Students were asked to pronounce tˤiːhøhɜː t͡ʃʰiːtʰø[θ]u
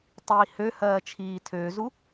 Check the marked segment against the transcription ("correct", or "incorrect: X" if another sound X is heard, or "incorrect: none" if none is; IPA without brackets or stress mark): incorrect: z